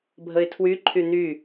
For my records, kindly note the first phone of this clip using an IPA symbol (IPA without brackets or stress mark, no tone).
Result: bʱ